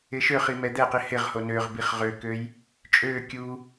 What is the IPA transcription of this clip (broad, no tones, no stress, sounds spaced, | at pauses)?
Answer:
ɪ ʃ ø χ i m ɛ d̪ ɛ q i h ɪ ʁ h o n ø ʁ b i χ ʁ ø k ø j | t͡ʃʼ ø kʲ u